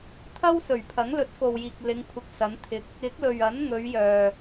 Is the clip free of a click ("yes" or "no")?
yes